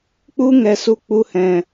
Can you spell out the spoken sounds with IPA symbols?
k͡p u˧ ŋ ɛ˨ s u˨ k͡p u˨ h ɛ̃˨

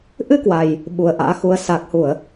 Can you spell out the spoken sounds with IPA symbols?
ʔ ɨ˧ k w a˨˩ j | ɓ u˨˩ ə̯ ʔ a̰ː˧˥ x u˧ ə̯ s aː˨˩ k̚ h u˧˩˨ ə̯

